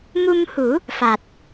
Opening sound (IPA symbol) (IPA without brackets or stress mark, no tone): m